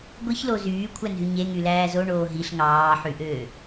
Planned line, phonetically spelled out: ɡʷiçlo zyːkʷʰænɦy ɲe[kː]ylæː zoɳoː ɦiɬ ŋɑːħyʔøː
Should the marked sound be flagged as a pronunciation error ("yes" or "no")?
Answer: yes